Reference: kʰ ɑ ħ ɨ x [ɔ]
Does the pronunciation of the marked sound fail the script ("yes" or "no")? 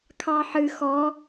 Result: no